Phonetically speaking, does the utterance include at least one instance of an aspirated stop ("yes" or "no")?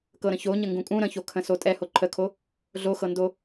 yes